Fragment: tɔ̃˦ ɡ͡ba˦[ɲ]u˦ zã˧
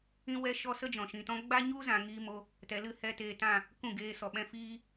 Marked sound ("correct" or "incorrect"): correct